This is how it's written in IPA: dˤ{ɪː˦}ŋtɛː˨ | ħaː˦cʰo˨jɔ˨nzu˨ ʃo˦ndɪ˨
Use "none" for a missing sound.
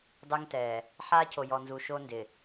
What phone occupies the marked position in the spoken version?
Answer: ɪː˦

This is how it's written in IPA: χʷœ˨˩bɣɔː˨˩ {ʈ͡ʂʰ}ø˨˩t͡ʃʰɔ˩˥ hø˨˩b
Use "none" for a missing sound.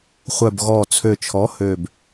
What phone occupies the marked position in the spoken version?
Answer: t͡sʰ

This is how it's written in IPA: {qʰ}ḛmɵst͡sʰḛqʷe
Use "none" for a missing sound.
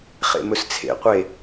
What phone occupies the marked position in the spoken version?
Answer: χ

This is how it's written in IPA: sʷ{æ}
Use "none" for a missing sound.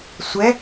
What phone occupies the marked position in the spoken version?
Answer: ɛ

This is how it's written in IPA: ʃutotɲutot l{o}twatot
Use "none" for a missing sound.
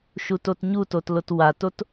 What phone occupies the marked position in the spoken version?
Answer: o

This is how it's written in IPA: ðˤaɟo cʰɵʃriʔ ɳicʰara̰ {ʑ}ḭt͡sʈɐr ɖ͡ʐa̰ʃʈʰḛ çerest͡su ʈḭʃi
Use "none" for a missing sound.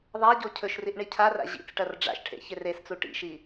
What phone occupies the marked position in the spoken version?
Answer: ʑ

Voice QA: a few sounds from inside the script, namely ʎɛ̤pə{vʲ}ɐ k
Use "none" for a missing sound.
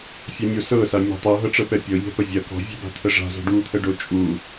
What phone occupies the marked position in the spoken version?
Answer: vʲ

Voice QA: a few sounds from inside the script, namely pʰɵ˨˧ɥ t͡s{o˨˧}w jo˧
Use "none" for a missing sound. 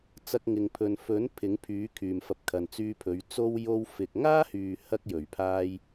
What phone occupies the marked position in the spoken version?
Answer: o˥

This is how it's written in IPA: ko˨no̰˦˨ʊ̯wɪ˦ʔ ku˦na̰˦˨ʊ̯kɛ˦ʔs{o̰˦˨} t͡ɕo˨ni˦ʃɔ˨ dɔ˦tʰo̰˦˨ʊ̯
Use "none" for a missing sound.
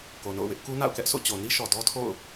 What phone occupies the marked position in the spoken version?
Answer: o̰˦˨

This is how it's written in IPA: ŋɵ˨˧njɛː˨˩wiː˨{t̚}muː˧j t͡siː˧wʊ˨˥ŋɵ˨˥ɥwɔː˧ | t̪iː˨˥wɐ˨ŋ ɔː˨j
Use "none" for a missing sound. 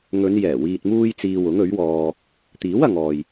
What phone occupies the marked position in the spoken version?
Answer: t̚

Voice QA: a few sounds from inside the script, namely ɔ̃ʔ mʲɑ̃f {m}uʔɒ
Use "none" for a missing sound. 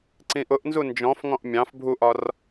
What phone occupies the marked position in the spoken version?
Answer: bʱ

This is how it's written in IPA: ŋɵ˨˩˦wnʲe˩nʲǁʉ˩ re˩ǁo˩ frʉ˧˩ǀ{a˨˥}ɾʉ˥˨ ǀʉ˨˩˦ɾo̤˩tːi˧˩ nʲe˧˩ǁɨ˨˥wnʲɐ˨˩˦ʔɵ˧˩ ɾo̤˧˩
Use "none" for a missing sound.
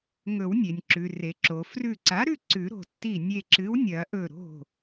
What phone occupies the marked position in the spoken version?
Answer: a˨˥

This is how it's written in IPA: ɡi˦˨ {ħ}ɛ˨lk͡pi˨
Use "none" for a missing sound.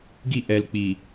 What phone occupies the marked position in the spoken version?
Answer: ʔ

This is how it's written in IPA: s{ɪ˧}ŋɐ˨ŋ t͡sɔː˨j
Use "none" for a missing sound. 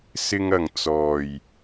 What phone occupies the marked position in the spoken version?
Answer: ɪ˧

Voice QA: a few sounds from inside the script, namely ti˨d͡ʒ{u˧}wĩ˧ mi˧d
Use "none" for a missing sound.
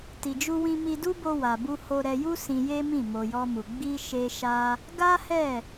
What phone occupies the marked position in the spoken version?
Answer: u˧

